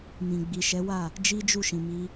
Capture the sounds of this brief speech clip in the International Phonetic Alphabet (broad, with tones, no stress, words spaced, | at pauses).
mĩ˨ ɡ͡bi˨ʃɛ˨˦wa˦˨ | d͡ʒi˦d͡ʒu˦˨ʃĩ˨ mi˧